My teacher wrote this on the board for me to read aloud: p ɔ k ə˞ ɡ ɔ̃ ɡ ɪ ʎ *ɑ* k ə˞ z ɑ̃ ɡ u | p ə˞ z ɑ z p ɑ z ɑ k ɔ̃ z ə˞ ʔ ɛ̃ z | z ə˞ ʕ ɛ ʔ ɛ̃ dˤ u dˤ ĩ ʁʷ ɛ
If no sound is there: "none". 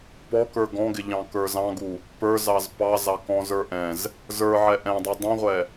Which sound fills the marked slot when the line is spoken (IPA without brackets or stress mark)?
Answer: ɑ̃